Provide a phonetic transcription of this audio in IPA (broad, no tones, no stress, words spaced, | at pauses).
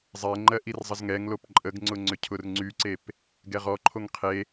zˤɛŋ͡ǃɜ ʔirzˤəzŋɛŋ lopǃʼəɡŋ͡ǀʊŋ͡ǀʏ cʰʊrŋ͡ǀyǀep | ɡɛʁɔǃʰoŋ qʰe